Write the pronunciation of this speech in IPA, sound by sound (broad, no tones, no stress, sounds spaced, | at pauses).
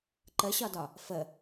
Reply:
ǃ ə ɕ ɒ d ɒ | f ə